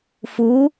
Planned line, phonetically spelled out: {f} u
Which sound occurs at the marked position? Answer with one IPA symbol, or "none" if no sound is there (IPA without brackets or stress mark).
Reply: f